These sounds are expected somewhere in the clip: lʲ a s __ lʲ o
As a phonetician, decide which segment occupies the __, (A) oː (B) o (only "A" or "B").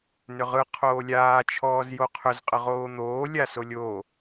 B